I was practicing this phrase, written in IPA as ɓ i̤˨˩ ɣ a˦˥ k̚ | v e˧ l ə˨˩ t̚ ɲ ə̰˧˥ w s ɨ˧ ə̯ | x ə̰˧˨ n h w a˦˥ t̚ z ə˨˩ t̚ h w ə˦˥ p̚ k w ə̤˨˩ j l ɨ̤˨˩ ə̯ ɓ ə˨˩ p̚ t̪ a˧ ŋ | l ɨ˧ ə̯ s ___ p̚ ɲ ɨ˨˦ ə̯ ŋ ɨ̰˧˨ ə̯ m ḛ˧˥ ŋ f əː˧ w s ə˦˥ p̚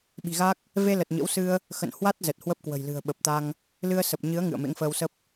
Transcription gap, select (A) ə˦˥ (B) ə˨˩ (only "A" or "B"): B